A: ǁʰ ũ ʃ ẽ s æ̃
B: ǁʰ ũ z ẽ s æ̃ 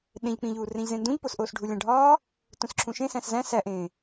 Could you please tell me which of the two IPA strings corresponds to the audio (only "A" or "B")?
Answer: A